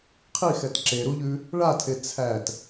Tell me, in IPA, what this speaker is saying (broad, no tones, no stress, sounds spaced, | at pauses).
qʰ i x ɛ t ǁ e ɾ u ʎ ʉ | ɭ a tʰ e t͡sʰ æ t